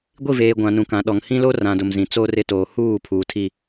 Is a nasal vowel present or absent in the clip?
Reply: present